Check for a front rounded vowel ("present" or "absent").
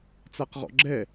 absent